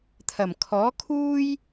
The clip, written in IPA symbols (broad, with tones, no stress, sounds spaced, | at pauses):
t̪ʰ ɐ˨˩ m kʰ ɔː˨˥ kʰ uː˥ j